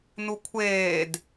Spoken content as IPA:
nukʷʰeːd

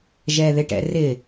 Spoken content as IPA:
ʒɛðɪʈɛ̰rɪ

